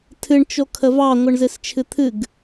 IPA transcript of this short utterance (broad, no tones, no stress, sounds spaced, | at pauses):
tʰ ɨ ɳ t͡ʃ o kʰ ə v ɑ ŋʷ ɨ ɳ z ɨ s t͡ʃʰ ɨ t̪ʰ ɨ ɡ